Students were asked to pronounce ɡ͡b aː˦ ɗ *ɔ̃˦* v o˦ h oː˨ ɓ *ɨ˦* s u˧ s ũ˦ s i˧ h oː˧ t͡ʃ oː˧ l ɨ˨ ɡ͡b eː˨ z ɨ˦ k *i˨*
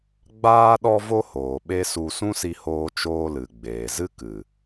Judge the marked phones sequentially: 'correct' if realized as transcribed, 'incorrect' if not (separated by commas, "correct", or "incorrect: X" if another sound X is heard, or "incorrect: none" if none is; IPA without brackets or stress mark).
incorrect: ɔ˦, incorrect: e˦, incorrect: ɨ˨